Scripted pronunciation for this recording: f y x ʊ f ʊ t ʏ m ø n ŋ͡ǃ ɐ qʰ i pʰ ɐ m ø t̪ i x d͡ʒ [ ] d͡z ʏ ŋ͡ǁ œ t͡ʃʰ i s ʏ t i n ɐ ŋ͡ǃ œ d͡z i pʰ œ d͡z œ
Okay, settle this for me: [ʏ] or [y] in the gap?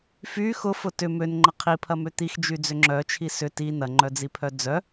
y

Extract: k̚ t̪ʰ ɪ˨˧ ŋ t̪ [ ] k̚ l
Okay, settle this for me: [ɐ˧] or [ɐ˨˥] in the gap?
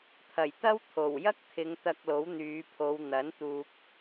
ɐ˧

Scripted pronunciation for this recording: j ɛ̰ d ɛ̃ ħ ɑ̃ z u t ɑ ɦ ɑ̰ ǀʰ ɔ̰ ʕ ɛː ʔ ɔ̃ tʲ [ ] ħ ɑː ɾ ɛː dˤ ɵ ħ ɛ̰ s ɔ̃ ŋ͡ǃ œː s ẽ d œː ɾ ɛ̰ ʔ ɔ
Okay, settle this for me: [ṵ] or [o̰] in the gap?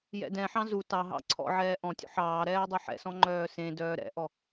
ṵ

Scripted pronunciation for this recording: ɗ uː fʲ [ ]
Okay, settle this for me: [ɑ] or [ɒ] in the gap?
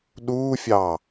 ɑ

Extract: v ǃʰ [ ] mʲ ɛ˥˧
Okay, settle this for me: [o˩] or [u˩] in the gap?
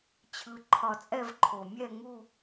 o˩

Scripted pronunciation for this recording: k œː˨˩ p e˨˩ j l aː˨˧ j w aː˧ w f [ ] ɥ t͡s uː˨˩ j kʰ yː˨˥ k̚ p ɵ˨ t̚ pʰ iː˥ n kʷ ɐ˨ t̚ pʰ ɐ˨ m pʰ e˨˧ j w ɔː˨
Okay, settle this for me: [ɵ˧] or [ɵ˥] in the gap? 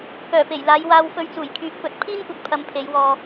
ɵ˧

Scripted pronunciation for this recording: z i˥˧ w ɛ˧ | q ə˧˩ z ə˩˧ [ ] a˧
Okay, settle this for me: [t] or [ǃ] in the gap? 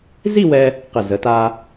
t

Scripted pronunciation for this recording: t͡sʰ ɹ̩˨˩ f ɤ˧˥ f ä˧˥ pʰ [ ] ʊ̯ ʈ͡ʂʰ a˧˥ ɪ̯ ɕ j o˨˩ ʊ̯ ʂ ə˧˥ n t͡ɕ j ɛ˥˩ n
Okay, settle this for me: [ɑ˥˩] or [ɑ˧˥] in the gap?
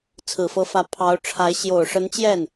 ɑ˧˥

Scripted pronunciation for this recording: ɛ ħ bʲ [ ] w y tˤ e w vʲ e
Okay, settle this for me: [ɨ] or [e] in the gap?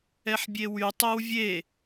e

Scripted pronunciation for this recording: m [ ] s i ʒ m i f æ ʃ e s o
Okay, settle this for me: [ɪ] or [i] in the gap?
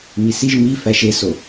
i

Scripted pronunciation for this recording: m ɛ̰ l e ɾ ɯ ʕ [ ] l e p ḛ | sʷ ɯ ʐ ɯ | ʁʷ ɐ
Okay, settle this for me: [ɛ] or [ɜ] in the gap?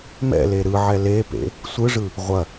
ɛ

